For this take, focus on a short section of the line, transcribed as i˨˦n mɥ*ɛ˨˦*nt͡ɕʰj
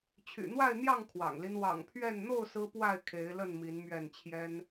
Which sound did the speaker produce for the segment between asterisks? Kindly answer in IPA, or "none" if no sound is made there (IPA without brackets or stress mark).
ɛ˥˨